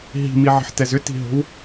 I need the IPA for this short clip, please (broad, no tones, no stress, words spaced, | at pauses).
ɦi̤miʕə̤ħtɛz ʏti̤ɦo̤w